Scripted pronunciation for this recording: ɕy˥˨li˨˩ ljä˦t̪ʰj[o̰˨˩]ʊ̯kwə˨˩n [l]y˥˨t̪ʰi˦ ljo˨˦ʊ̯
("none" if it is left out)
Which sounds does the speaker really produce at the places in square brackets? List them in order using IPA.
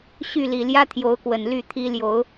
o˨˦, l

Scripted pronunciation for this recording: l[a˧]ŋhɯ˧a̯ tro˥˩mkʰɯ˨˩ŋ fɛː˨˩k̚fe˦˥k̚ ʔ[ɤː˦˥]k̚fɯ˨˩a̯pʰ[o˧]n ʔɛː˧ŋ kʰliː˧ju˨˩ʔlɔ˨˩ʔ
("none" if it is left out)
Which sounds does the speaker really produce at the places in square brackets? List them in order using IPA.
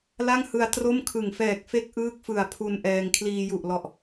a˥˩, ɯː˦˥, u˧

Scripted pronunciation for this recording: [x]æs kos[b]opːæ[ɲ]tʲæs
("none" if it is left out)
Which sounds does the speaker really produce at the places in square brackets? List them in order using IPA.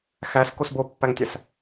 x, b, ŋ

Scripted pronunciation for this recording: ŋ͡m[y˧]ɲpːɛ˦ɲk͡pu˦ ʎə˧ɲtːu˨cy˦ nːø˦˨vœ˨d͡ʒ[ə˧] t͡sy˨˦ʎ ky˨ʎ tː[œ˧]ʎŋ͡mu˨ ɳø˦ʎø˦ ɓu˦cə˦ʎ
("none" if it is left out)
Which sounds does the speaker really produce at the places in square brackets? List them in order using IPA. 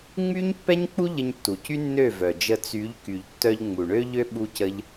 y˦, ə˧, œ˧

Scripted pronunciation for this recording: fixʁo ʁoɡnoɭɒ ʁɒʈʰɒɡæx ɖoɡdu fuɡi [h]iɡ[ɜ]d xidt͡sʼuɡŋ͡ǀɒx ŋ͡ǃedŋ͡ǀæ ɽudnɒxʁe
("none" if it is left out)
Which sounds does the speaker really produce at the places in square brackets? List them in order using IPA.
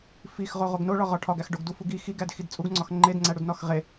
x, æ

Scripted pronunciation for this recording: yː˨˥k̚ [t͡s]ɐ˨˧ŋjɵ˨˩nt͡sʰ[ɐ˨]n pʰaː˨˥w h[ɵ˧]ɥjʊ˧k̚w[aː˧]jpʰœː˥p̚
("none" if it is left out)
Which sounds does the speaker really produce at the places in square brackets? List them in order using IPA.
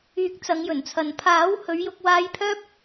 t͡s, ɐ˨, ɵ˨˧, aː˧

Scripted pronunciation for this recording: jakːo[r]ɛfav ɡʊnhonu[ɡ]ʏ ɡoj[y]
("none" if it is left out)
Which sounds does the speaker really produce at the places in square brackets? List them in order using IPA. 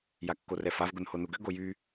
r, ɡ, y

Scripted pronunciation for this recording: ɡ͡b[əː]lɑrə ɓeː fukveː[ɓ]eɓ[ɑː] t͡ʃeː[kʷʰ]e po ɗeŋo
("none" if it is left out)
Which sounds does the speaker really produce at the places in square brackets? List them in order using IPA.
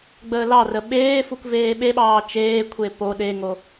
əː, ɓ, ɑː, kʷʰ

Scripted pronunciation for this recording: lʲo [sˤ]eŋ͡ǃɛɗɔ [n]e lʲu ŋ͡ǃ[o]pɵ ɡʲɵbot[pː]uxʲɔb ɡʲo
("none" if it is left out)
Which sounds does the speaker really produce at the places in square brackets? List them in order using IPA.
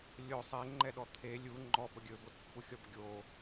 sˤ, t̪ʰ, ɔ, pː

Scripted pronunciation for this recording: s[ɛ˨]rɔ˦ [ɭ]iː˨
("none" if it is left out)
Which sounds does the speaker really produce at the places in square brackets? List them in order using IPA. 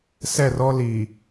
ɛ˦˨, l

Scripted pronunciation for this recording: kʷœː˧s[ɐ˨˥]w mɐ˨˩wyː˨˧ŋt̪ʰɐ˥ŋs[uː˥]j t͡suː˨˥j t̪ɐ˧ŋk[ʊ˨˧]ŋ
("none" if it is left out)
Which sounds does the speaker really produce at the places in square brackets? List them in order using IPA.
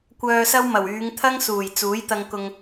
ɐ˥, uː˨˩, ʊ˧

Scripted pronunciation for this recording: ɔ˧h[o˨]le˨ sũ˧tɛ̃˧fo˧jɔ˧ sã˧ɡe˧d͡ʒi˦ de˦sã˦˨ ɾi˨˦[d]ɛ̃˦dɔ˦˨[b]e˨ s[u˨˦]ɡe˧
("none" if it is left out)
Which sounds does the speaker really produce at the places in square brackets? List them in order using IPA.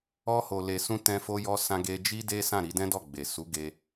o˨, d, ɡ͡b, u˨˦

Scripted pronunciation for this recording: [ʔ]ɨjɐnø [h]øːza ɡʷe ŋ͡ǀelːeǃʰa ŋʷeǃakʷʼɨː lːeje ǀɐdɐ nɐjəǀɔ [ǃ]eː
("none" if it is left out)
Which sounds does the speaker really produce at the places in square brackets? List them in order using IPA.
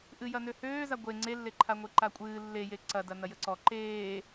ʔ, h, ǃ

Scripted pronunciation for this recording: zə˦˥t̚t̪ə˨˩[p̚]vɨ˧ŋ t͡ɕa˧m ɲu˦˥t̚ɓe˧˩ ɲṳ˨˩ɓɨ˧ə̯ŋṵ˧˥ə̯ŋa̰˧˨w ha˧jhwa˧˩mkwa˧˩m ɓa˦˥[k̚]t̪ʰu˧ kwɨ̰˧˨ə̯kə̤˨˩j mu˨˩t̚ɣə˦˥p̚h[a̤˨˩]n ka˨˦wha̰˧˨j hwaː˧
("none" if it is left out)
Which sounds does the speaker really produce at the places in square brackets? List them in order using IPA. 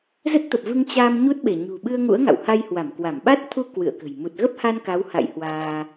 p̚, t̚, a˧

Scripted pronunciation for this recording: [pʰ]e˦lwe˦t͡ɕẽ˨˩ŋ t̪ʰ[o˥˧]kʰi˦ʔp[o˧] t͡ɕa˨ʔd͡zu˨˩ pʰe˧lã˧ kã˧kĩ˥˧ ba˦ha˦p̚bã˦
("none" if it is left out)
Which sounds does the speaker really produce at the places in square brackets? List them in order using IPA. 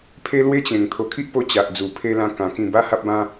pʰ, o˨˩, o˧

